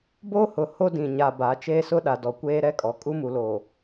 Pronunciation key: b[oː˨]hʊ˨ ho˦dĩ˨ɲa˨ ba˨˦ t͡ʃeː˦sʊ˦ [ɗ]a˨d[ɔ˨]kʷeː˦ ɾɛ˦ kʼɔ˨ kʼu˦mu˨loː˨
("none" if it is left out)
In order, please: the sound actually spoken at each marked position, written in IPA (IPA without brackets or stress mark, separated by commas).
oː˦, ɗ, ɔ˨